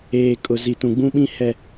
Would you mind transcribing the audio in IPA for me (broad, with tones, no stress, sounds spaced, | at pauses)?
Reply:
eː˨ kʼ ʊ˨ z i˨ t ũ˨ ɡ͡b ũ˦ ɓ ĩ˦ h ɛ˨